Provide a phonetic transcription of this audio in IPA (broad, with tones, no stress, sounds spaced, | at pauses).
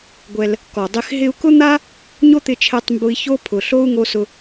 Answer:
ɡʷ ɛ˧ l | k ɔ˨ dˤ ɪ˦ x ɦ ɪ˧ u̯ k ʊ˦ n̪ a˦ | ɲ o˦ t̪ ɪ˧ t͡ʃʰ ɛ˧ tˤ m b ʊ˧ i̯ ç o˦ pʰ ʊ˨ ɬ o˦ u̯ ŋ o˧ s ʊ˧